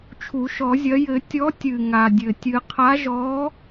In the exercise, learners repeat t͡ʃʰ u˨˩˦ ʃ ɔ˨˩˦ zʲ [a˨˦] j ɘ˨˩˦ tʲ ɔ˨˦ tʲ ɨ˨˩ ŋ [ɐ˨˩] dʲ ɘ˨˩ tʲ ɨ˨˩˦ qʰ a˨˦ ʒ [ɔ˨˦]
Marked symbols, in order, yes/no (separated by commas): no, no, yes